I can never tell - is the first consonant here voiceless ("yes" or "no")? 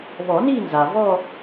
no